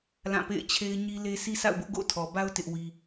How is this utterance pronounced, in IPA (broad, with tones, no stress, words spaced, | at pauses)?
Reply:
lã˦˨pḛ˦˨ɪ̯t͡ɕʰe˦ɪ̯ ɲi˦le˦ si˦sa̰˦˨ʊ̯bʊ˦ʔ ɡo̰˦˨tʰɔ˨ba˦ʊ̯ tɪ˦ʔwi˦